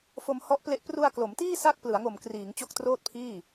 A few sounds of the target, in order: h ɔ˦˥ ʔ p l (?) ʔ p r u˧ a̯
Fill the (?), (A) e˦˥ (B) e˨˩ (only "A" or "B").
A